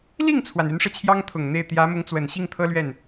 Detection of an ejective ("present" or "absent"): absent